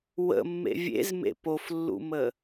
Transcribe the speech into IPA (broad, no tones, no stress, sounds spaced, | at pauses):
w ə̰ mː ḛ vʲ ḛ z m ḛ p o f lː ṵ m ə